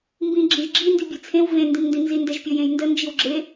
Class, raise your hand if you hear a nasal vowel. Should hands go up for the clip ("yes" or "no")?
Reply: yes